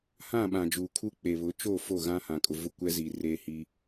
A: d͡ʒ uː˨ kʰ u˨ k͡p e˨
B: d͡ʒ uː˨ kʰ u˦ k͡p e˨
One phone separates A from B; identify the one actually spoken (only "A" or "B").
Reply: B